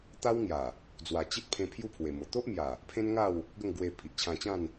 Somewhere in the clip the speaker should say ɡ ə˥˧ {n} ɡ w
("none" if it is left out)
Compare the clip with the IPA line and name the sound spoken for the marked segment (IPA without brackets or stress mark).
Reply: ŋ